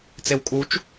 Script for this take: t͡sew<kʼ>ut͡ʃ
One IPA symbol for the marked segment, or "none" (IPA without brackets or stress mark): kʼ